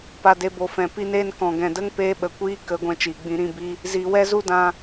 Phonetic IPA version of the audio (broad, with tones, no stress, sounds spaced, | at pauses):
p a˨ d e˨ b o˨ f ɛ̃˨ p i˧ n eː˧ n k ɔ̃˨ ɡ ɛ̃˨ d ə˦ ŋ p eː˧ ɓ ə˨ kʷ iː˦ k ə˨˦ ɡʷ ɛ̃˧ t͡ʃ iː˨ ɡ͡b ĩ˧ ɾ ĩ˧ b i˦ | z iː˨ w ɛ˦ z u˦ d ã˧